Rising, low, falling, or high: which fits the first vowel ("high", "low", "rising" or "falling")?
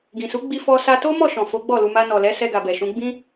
low